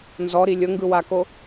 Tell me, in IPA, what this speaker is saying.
n z ɔ ɾ i lʲ ɤ ŋ ɡ ɯ w a k o

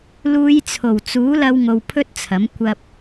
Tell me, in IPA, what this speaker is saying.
l uː˨˧ j t͡sʰ o˨˩ w t͡s uː˨˥ l ɐ˧ w ŋ o˧ w pʰ ɵ˥ t̚ t͡sʰ ɐ˨˥ m kʷ ɐ˧ p̚

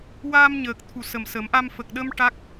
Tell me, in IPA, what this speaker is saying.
w aː˧ m ɲ əː˨˩ k̚ t̪ʰ u˨˩ s ə˨˩ m s ə˨˩˦ m ʔ a˧ m f ə˨˩ k̚ ɗ ə˧ m ʈ a˦˥ k̚

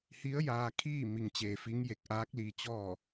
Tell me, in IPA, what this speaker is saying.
h i˧˥ ə̯ j aː˧ kʰ iː˥˨ m i˧ ŋ t͡ɕ eː˧ f i˧˥ ŋ j e˧˩ k̚ ʔ aː˧˥ k̚ l iː˧ t͡ɕ ɔː˥˨

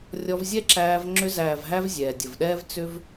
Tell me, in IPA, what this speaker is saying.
rʲ ɔ˧ v zʲ ɛ˦ ǁ æː˧ v ŋ͡ǁ ʏ˧ z æː˨ v ɦ æ˧ v zʲ ɛː˨ dʲ ə˨ v ɗ ɛː˦ v t͡s ʏ˦ v

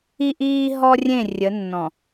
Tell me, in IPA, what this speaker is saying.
i˦ ʔ iː˦ ɦ ɔ˦ rʲ ẽ˦˨ rʲ ə˨˦ nː ɔ̃˨

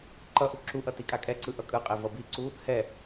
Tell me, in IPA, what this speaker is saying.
ǃ ʌ ʔ u ǁ u ʔ ʌ t i kʼ a kʼ ɛ ǀ ɯ ʔ ʌ kʼ ɯ qʼ e v ʌ b i ǀ u | h ɛ

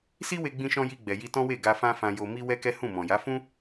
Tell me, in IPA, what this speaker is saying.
s i˦ w e˧ ɡ͡b ĩ˧ ʃ ɔ̃˧ j i˧ ɡ͡b ɛ˨ j i˧ t ɔ̃˦ w e˦˨ ɡ a˧ f ã˦ f ã˧ j o˧ m i˦ w ɛ˦ k ɛ˦ h ũ˦˨ m ɔ̃˨ j a˨˦ f ũ˦

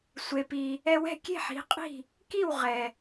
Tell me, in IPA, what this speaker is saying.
sʷ e˩ p i˩ | ɛ˧ w ɛ̤˥˩ kʲ e̤˥˩ ħ i̤˩˥ qʼ i̤˥˩ | k i˥˩ w ʁ ɛ˩

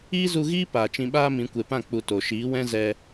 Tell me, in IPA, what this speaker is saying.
iː˦ z u˧ ɣ iː˦ p aː˨ t͡ʃ ĩ˧ ɓ aː˦ m ĩ˨˦ kʷ e˨ p ã˦˨ k͡p u˨ t o˨ ʃ iː˨˦ w ɛ̃˦ z ɛ˧

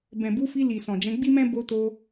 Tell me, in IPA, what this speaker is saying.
b ɛ̃˨ b u˨˦ f i˧ l i˨ s ɔ̃˨ d͡ʒ ɛ̃˨˦ ɡ͡b i˦ m ɛ̃˦ b o˧ t o˧

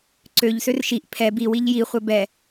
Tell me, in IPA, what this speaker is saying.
ǀ ø ʎ s ø r ʃ i ʔ pʰ ɛ b i w i ʎ j i χʷ ɛ b ɛ

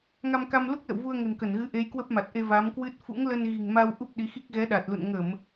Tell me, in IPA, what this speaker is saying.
ŋ a˧ m k a˧ m l u˦˥ k̚ l ə̰˧˨ w v u˧ ə̯ ŋ ə̤˨˩ n k ə˧˩ n ɣ ɨ˨˦ ʔ e˨˦ j k w ə˦˥ p̚ m a˨˩ t̚ ʔ e˧ v a˨˦ m k w ɨ˦˥ t̚ f ṵ˧˥ ŋ l ə˧ n ɣ i̤˨˩ ŋ m a˧ w ʔ u˦˥ p̚ ɗ i˨˦ x i˦˥ k̚ ɣ ɛ˨˦ ɗ a˨˩ t̚ l ṵ˧˨ n ŋ ə˧˩˨ m

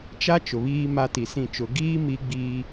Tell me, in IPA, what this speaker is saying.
t͡ʃ a˦ t͡ʃ ʊ˨ β iː˦ m a˦ t i˨ s ĩ˦˨ t͡ʃ ʊ˨ ɡ iː˦ m i˦ ɡ͡b i˦

